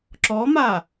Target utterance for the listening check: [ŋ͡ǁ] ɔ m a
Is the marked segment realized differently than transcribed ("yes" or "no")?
yes